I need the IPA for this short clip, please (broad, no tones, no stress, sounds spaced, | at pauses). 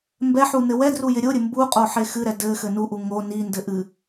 m b ɛ ħ u n ɘ w ɛ d r u j ɪ ɾʲ o ɾʲ ɘ m b u qʼ o ħ e x ɨ ɾ ɛ d ɘ x ɘ n u ʔ u ŋ o n i n d ɘ ʔ ɨ